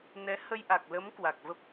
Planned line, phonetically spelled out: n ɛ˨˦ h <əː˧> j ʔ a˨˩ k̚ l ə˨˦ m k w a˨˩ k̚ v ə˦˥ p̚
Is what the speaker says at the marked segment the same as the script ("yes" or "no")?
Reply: no